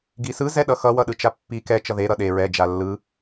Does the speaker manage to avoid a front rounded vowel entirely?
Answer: yes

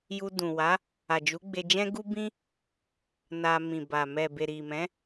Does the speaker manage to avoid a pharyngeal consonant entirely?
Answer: yes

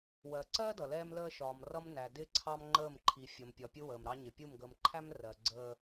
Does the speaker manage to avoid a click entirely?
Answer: no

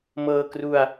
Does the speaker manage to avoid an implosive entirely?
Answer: yes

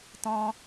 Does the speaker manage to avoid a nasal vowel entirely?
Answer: no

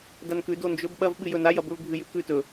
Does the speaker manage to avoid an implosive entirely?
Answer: no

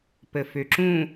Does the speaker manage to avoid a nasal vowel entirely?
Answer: no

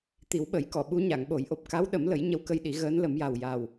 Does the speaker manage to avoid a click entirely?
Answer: yes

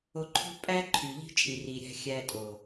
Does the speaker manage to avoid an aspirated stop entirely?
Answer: no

